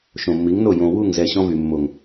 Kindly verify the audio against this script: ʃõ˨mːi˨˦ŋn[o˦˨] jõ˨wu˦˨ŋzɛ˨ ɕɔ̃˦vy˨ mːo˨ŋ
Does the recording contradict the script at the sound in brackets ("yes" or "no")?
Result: no